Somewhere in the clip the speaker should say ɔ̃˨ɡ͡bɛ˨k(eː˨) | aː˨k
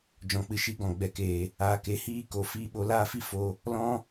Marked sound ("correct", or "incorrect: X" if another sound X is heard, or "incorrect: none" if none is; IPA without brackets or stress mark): correct